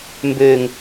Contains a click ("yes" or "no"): no